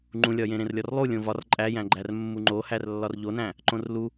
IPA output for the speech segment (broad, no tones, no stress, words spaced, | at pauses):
ŋ͡ǃũlʲɒjẽ ɾẽrlʲɒrlˠu lʲõvɒr ǃʼæjæ̃ɡ͡ǃær mːuŋ͡ǃohærlːɒr ʎonæ̃ | ǃõrlu